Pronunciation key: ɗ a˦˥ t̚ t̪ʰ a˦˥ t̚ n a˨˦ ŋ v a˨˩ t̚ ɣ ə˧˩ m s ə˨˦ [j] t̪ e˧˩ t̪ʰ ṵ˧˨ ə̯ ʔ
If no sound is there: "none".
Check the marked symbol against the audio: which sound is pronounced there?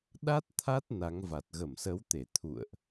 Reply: w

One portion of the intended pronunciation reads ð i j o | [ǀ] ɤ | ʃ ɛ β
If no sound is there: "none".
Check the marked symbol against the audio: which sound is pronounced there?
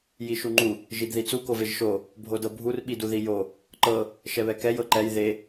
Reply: ǃ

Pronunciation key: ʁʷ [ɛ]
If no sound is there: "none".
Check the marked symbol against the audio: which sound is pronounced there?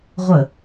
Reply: ə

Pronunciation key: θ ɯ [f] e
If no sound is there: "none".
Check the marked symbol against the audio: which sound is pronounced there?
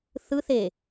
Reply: θ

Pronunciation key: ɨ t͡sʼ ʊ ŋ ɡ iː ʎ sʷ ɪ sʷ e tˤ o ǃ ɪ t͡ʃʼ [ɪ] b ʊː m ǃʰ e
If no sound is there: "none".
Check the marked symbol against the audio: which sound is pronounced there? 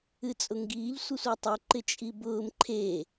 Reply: i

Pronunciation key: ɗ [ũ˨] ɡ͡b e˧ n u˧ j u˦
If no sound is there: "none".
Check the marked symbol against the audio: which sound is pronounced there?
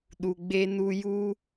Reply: u˨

